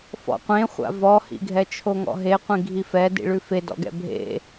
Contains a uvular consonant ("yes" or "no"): yes